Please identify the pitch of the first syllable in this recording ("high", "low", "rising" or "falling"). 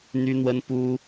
high